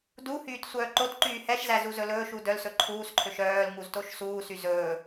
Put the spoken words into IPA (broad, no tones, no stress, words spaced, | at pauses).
duhyːt sʷœːǃotǃyː hɛʃzæ zuzɵlɵːʃu dœlsɵ ǃʰuːsǃʰøʃ œːl ŋuztoʃsuːsy zɵː